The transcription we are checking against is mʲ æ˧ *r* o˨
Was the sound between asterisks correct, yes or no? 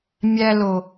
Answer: no